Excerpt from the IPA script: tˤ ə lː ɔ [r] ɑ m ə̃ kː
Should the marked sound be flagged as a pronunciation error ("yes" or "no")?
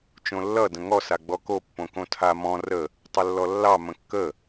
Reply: yes